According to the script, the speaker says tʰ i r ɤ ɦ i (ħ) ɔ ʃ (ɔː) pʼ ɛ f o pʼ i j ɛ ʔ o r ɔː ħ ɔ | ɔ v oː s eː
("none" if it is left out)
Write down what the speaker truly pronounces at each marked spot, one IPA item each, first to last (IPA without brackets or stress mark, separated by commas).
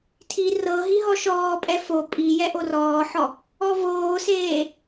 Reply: ɦ, ɔː